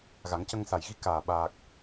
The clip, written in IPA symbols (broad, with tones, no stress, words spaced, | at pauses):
ɣa˨˩˦ŋcə˧ŋsa˨˩j ɣi˧˥kaː˨˩ ɓaː˨˩k̚